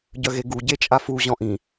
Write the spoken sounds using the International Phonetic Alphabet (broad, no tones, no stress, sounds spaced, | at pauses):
ɟ œ ɣ e ɡ u ɟ e t͡ʃʼ a f u ʑ ɔ̃ ʔ ĩ